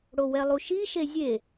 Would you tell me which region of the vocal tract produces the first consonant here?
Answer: retroflex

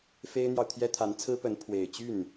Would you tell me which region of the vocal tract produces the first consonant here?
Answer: lips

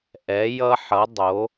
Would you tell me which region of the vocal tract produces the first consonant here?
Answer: throat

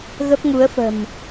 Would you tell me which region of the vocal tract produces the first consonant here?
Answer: velum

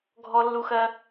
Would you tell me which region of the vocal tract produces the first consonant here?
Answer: velum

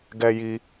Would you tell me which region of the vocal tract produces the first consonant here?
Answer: velum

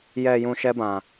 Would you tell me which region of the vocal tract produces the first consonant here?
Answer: palate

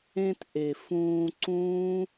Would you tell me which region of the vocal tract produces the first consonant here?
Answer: tongue tip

